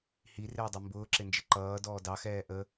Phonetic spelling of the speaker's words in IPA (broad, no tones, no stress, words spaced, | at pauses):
hirɪːdˤi mbʊːǁɪnd͡ʒɪ ǃʌːdɔː dɑxɛː ʔə